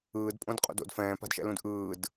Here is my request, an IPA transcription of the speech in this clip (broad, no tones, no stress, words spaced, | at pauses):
ɯːdpʼõdqʼo̰d o̰d fɛ̃ːpa̤dʃɛ̰lũd ʔɯːd